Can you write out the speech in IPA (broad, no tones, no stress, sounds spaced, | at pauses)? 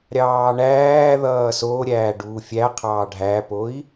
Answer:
ɾʲ ɑː ɳ æː ð ʌː s o ɾʲ æː ɖ uː fʲ æ qʰ ɑː ɖʱ æ p o i̯